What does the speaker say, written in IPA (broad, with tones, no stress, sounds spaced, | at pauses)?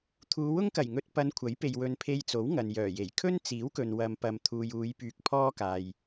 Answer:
t̪ʰ uː˨˧ w ʊ˥ ŋ k ɐ˨˩ j ŋ ɵ˧ t̚ p ɐ˨˧ n kʷʰ ɐ˨˥ j p e˨ j w ɵ˨ n pʰ e˧ j t͡s o˨˥ w ŋ ɐ˨ n j œː˨˩ j e˨˩ j kʰ ɵ˥ n t͡s iː˨˥ w k ɵ˨ n w ɐ˨ m p ɐ˨ m t̪ʰ uː˨ j uː˨˧ j p yː˧ k̚ pʰ ɔː˥ k aː˨ j